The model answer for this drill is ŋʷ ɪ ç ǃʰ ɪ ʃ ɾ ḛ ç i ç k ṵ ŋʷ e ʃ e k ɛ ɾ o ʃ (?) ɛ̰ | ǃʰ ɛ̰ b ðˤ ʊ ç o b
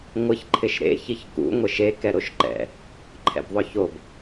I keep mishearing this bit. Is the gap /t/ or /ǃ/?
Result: ǃ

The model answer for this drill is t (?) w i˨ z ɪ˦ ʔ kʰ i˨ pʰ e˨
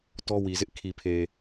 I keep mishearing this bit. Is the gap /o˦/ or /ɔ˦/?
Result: ɔ˦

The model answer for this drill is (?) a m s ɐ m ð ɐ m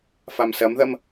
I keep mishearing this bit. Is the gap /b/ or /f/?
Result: f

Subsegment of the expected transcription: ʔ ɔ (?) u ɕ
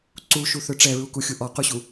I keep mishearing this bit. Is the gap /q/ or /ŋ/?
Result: q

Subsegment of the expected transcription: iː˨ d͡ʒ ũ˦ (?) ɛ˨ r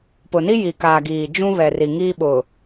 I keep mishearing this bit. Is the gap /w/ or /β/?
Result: β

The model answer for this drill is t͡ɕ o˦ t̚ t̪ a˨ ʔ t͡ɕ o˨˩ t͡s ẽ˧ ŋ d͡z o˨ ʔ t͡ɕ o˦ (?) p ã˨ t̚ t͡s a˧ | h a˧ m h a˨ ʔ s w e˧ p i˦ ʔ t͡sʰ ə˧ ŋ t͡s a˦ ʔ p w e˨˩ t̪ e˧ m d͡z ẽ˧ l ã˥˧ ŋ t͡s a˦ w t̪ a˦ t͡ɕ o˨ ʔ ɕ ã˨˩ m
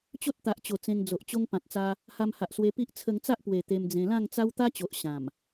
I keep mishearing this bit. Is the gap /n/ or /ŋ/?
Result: ŋ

